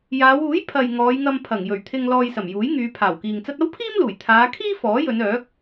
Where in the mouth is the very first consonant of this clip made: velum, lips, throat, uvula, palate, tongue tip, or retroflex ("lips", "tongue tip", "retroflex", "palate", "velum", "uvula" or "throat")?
palate